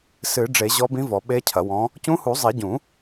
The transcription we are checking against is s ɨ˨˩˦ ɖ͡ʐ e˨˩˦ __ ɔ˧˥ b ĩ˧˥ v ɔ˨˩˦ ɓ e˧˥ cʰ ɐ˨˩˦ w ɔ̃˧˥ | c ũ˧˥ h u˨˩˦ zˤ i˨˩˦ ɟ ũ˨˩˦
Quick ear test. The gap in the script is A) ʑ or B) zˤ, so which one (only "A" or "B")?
A